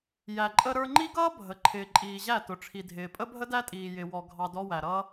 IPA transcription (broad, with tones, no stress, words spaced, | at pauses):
jæ˨ǃʼə˧ ɾə˞˧ŋ͡ǃi˦ɡʌː˦ bʱə˨ ǃʰɪː˨ǃʼiː˨ʑæ˦˨ tʊ˨ʈ͡ʂʰi˨dʱɪː˨ pʼə˦bʱə˦dæ˦tʼiː˨ jɪ˨wɔ˨ ɡʱɑ˧dɔ˦wæ˨ɾʌː˦